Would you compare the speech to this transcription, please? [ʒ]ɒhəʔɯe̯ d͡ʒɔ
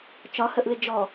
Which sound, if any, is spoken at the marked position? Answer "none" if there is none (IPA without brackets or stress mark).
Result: t͡ʃ